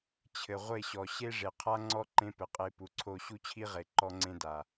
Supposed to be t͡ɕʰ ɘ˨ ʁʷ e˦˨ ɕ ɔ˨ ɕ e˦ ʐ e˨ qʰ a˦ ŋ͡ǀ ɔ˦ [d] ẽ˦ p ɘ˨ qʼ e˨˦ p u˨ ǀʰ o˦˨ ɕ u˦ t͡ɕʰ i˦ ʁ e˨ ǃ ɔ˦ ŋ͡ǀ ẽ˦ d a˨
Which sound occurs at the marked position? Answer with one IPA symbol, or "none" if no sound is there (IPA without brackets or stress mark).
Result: ǃ